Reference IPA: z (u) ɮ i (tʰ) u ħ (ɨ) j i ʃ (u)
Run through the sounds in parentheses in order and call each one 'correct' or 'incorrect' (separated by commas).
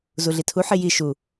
correct, correct, incorrect, correct